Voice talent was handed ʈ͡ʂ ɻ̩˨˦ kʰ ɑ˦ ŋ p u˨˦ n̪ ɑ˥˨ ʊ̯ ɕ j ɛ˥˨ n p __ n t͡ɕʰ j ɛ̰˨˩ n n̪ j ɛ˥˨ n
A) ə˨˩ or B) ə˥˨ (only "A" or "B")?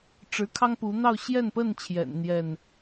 B